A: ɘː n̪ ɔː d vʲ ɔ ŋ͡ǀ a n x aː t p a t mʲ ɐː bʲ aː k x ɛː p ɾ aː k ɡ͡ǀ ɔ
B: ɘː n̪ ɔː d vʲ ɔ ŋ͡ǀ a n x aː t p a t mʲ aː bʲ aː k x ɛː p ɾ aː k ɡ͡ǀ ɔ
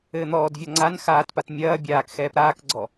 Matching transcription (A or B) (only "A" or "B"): A